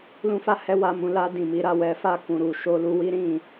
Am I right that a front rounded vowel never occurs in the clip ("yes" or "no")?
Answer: yes